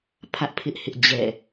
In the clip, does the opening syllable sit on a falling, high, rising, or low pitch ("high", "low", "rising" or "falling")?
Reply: high